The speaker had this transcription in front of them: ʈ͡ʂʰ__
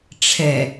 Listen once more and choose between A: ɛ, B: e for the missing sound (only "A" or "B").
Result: A